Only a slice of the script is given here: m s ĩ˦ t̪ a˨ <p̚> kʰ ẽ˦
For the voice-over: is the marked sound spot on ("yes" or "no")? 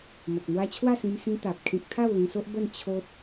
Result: yes